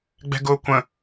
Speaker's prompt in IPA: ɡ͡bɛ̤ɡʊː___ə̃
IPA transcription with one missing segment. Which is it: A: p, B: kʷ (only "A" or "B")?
B